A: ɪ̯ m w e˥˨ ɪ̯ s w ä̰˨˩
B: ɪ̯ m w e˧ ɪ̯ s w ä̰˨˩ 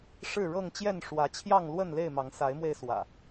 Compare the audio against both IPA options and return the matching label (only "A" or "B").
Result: B